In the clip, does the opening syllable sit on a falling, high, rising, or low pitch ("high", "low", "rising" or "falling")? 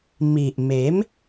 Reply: low